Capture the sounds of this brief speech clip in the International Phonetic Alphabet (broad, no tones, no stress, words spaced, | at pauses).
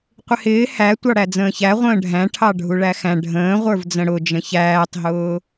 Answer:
qʷɪhɪː hæ tʷɑɽæd͡zə̃ːçæ ʁʷə̃ːɖʱæ̃ ʈʰɑɖʱuɭæxæ̃ ɖʱə̃ːʁʷə˞vd͡zə̃ ɽʊd͡ʒə̃ çæːtˤɦʊː